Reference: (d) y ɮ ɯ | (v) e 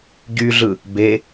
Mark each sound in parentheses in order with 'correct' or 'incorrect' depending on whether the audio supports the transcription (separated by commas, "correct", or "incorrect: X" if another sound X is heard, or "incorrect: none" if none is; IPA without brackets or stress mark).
incorrect: ɟ, incorrect: b